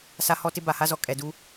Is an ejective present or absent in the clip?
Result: present